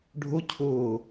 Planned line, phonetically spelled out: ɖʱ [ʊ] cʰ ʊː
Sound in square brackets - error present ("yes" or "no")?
no